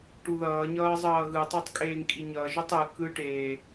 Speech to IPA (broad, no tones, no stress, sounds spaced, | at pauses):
ʈ u ð ʌː ɲ ʌː zˤ ʌː ɣ ɯ tˤ e tˤ kʼ eː ŋ kʼ i ɲ ʌ ʒ o tˤ ɯ k ɯ ʈ eː